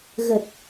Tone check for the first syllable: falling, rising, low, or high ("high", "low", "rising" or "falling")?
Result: low